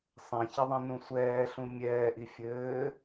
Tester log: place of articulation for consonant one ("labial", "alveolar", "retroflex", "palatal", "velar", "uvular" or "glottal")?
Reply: alveolar